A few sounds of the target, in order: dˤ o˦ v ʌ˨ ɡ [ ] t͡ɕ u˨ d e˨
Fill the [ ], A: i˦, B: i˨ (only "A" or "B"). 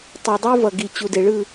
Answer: B